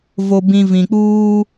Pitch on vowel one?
low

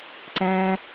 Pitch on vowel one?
high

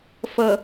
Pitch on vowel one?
low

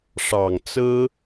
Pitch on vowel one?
low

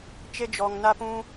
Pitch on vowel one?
high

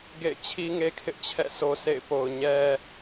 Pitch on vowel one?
falling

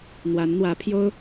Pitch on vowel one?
rising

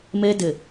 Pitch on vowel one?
high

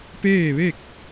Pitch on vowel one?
falling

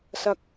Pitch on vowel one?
low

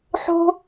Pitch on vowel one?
high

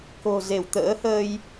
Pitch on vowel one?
low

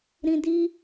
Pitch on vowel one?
low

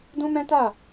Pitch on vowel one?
high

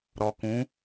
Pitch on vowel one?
low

